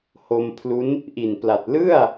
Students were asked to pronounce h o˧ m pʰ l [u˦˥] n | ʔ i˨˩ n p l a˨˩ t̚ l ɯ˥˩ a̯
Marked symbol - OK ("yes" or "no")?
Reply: yes